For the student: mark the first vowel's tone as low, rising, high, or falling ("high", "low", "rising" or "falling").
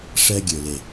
high